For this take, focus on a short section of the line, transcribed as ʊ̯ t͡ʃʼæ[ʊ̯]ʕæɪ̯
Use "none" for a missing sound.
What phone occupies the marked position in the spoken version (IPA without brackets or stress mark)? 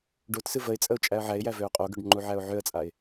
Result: ə̯